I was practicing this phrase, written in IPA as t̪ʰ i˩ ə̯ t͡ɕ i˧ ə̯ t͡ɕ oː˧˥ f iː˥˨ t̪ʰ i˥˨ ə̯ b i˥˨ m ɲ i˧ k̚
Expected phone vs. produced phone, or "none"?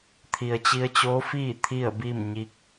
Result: none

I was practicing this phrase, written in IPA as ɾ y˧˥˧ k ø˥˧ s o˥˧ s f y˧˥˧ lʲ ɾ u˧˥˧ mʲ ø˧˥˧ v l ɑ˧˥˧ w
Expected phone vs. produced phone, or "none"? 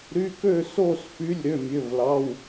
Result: u˧˥˧ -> ø˧˥˧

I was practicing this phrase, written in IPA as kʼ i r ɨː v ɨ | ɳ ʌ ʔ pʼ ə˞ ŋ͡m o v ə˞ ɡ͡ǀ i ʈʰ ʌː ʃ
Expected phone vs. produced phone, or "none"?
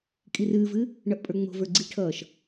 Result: o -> o̤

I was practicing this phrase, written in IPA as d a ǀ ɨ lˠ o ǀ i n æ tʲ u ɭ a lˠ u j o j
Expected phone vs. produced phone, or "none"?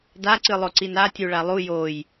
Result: æ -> a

